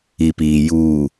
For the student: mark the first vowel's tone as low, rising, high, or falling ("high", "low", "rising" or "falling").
low